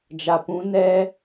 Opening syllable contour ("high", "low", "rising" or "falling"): low